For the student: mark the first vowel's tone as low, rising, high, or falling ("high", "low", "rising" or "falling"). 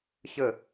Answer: falling